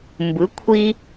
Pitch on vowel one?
rising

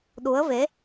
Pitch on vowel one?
rising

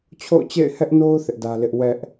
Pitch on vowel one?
falling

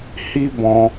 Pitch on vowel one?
high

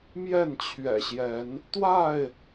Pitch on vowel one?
falling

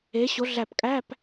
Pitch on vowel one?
rising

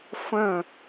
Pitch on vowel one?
falling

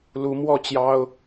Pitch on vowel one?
rising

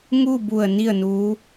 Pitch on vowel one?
falling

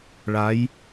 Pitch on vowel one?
rising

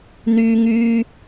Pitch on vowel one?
high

